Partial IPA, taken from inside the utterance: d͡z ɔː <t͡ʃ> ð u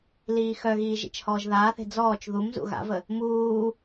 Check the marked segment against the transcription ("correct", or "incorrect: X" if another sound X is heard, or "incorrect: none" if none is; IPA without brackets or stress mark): correct